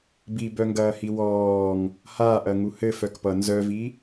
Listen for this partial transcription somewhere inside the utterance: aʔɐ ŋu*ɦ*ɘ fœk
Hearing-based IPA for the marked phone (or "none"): h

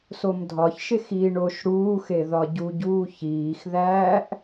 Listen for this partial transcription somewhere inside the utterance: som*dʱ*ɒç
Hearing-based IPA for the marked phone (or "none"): dʱ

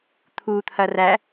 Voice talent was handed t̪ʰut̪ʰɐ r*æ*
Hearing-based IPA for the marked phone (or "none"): æ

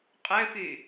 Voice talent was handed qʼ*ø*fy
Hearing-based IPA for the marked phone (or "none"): ø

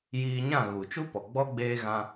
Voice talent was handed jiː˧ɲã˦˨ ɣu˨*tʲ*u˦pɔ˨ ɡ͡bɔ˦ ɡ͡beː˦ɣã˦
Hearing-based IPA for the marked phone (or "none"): t͡ʃ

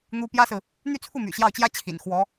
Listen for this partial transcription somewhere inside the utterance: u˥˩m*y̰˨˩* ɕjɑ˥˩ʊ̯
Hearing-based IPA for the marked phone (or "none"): y̰˨˩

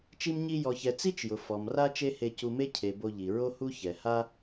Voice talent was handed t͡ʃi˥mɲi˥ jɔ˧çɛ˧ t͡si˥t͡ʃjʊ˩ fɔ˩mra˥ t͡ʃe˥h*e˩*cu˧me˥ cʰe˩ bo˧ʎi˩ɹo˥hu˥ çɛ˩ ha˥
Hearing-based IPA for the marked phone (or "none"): e˧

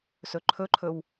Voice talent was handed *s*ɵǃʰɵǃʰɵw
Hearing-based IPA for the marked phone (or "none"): s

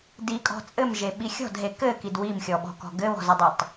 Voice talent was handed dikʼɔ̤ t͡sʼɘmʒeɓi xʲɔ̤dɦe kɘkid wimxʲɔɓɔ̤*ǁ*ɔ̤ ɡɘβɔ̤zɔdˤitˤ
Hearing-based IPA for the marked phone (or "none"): k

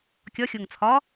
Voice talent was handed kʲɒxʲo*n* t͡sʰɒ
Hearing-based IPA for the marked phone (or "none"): ŋ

